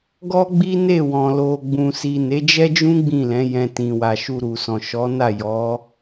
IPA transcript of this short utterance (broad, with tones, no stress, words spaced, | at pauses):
ɡɔ˦ɡ͡bi˦ne˦˨wɔ̃˨ lo˨ɡ͡bũ˨si˨ ne˨˦d͡ʒɛ˦d͡ʒũ˦ ɡ͡bĩ˦˨lɛ̃˨˦jɛ̃˧ tĩ˨wa˨ʃu˧ ɾu˨sɔ̃˨ ʃɔ˨˦na˦˨ jɔ˨˦